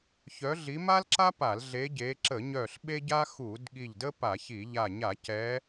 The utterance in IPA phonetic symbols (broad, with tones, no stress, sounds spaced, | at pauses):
ç œ˨˦ ɮ i˨˦ m a˥ l ǁ a˥ p a˧˩˧ l ɮ e˨˦ ɟ e˨˦ ǁ ə˧˩˧ ɲ œ˧˩ ɬ ɓ e˥ ɟ a˥ x u˧˩˧ d ɠ i˧˩ ʎ d ə˥ p a˧˩˧ ç i˧˩˧ ʎ a˧˩ ɲ a˧˩˧ c ɛ˨˦